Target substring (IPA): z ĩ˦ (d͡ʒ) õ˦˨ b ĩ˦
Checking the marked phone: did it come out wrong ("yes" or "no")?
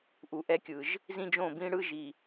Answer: no